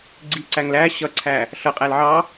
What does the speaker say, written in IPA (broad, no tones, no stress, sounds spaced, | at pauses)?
ɡ͡ǀ i ǀ æ ŋ l æ ɕ ʌ ǀʰ æ | ɬ ʌ qʼ æ l ʕ ɑ